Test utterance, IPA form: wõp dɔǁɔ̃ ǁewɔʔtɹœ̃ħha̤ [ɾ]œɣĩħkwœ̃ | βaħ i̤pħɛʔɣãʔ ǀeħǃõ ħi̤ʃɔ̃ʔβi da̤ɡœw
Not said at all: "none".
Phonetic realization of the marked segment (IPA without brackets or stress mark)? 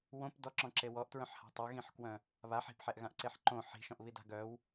tˤ